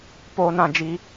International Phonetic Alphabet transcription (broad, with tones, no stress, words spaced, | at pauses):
po˦ nã˦d͡ʒi˦